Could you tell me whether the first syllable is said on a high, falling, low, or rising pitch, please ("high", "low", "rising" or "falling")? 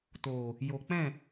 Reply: low